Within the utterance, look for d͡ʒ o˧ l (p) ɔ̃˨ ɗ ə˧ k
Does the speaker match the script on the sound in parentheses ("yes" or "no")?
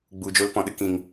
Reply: yes